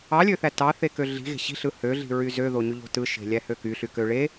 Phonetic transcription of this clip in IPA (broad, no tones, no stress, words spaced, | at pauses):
ɑlʲøθæ tɑθekø ɮi̤ɣe̤ ɕi̤ɬɯ høɮi̤ɹy zøðoɲyʎo̤ tɯʃe̤lʲæhø kyɬykø ɭe